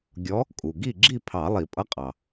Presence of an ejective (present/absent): present